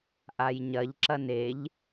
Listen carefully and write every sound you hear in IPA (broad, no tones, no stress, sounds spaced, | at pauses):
ʔ a j ɲ ɐ ʎ ǁ ɐ n e ʎ